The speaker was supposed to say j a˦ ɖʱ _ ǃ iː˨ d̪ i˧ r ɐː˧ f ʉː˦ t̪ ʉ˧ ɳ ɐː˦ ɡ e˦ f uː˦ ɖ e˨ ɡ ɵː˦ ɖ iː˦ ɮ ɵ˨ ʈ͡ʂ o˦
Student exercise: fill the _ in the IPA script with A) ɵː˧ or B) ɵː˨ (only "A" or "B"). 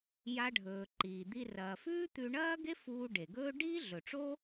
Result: A